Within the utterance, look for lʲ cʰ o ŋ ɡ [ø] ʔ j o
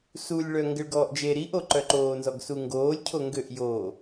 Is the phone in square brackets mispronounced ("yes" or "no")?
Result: no